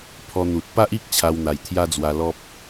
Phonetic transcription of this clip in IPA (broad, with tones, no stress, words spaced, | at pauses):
pʰɔ˧n̪u˨t̚ pa˦ʔi˦k̚ t͡ɕʰa˧wn̪a˨˩jt̪ʰja˦d͡zwa˧ lɔ˦p̚